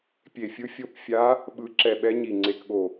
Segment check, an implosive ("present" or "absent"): present